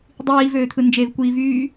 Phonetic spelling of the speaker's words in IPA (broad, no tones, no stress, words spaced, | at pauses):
dˤiːvøːt̪ʰɯ nd͡ʒevkʷiːvyː